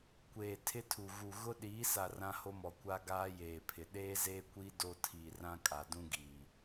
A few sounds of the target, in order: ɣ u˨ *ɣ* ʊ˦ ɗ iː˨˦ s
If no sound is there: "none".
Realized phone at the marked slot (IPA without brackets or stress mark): ɣ